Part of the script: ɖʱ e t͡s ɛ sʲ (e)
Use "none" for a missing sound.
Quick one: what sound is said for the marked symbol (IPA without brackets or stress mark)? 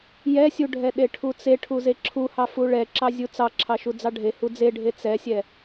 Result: ɛ